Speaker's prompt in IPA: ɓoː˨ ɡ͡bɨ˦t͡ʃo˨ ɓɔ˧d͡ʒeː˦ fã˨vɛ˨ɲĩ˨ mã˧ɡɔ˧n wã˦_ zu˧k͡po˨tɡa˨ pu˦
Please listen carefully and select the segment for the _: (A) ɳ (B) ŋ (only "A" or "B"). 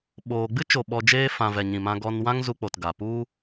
B